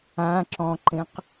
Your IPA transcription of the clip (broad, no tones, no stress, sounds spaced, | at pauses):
ã ǁ ɔ̃ ǃ ẽ q